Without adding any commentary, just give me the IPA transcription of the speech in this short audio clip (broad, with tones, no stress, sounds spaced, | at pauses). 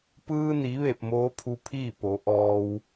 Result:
p ɯː˧ n i˩˧ ʋ e˧˩ p̚ m oː˧˥ pʰ u˧ pʰ iː˥˨ p o˩˧ ʔ ɔː˧ w